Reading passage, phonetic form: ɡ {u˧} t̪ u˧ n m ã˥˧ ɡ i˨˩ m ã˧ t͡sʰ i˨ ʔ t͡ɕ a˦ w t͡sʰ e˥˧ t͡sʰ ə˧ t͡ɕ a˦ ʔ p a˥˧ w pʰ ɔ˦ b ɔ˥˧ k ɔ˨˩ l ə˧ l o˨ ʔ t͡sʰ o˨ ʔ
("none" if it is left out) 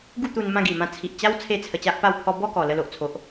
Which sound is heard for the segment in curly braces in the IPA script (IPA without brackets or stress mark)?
u˥˧